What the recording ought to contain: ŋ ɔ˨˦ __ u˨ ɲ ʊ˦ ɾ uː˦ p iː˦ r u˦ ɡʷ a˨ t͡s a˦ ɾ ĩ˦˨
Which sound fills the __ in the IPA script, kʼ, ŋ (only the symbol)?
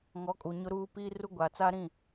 kʼ